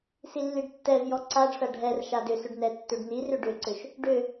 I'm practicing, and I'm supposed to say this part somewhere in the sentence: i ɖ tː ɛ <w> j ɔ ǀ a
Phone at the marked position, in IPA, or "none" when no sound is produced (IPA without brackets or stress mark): v